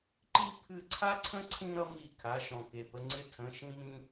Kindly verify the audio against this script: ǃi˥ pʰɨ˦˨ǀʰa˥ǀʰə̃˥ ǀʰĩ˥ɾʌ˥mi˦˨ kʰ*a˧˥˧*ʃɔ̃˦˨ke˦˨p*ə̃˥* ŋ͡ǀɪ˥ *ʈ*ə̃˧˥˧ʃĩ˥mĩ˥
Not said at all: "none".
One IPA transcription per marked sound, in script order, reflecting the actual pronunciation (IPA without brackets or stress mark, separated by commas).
a˧˥˧, ə˥, tʰ